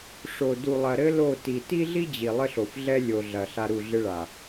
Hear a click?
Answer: no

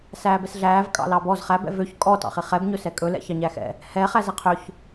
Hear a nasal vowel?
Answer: no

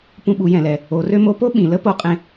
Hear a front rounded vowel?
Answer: yes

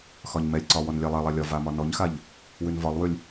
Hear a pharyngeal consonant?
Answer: no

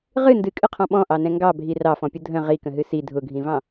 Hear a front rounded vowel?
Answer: no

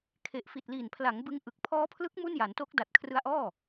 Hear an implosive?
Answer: no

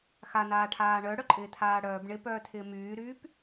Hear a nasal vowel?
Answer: no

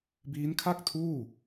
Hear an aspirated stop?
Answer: yes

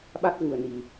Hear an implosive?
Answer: yes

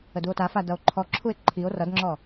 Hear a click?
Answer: yes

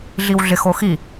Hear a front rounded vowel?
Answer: no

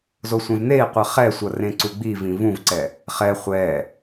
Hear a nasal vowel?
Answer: yes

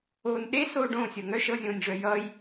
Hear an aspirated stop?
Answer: no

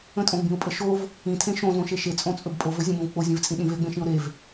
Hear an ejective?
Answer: yes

